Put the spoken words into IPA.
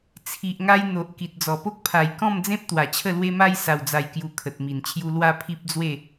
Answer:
t͡sʰ i˨ ʔ ŋ a˧ j n̪ o˨ ʔ k i˨ t̚ d͡z ɔ˨˩ p o˦ k̚ pʰ a˨˩ j k ɔ̃˥˧ m d͡z ẽ˦ p̚ t̪ w a˨˩ t͡ɕʰ ə˥˧ l w e˦ m a˦ j s a˨˩ w d͡z a˨˩ j k j u˨˩ kʰ ə˨ t̚ m i˨˩ n t͡ɕʰ j u˧ l w a˦ pʰ i˦ p̚ d͡z w e˥˧

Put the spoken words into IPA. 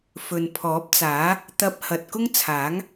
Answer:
f ɵ˨ n pʰ ɔː˨˥ p̚ t͡s aː˨˥ | t̪ ɐ˧ p̚ h ɐ˨ t̚ k ʊ˥ ŋ t͡sʰ aː˨˥ ŋ

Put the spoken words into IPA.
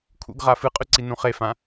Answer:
kʰ ṵ ɡ ʁ a f ɨ qʼ ʉ ǀ i n ũ χ e f ã

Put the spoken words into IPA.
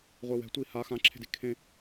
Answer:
ʁʷ e w ɛ̤ tʷ i h a x ã ǁʰ e̤ d i kʰ ẽ

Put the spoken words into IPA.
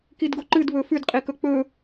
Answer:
k i d ɡ o ǃ ɨ d β ɵ f ʉ d qʼ i k ɵ k͡p ɵ

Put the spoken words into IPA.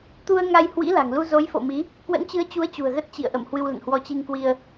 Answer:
t̪ u˧ ə̯ ŋ a˧ j h w ḭ˧˥ l a̤˨˩ ŋ l u˧ z o˨˦ j f o̰˧˨ m i˨˦ | k w ə̰˧˥ n t͡ɕ ɨ˨˦ ə̯ t͡ɕ u˨˦ ə̯ t͡ɕ ṳ˨˩ ə̯ ɣ ə˦˥ t̚ t͡ɕ ḭ˧˨ ə̯ ʔ ə̰˧˨ m h w ɨ˧ w l ə̰˧˨ n h w ɔ˧ t͡ɕ i˧ ŋ k w i˧ ə̯

